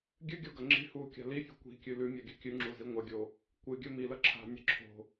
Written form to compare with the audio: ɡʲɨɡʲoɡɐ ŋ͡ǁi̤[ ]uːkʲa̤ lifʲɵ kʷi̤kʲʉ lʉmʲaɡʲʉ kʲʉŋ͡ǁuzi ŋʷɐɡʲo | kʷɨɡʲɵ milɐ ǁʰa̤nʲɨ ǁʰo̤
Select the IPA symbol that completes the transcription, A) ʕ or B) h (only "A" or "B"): B